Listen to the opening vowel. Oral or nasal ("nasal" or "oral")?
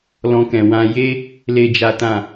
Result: nasal